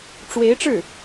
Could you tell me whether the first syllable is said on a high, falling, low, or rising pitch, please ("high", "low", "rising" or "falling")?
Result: rising